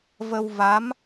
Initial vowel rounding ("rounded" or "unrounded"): unrounded